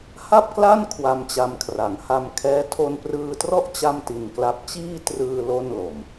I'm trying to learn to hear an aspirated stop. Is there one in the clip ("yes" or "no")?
yes